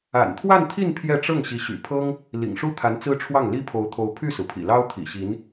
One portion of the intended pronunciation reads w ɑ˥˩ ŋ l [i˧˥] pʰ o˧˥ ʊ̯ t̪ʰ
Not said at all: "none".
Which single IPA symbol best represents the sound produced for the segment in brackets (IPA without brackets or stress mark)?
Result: i˥